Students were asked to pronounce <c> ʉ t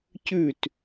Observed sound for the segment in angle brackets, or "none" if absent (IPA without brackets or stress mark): c